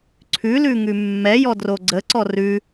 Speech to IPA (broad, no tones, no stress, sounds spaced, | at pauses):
ǀʰ ʉ l ʉ ŋ ʉ mː ɛ j ɔ d r o ɡ͡ǀ ə ǀ ɔ r ʉ